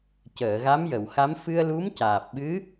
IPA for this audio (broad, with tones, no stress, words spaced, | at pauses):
cəː˨˩˨ɣa˧˥mjə˨˩˨wxa˧˥m fɨ˧ə̯lu˧˥mcaː˨˩p̚ɓɨ˧˥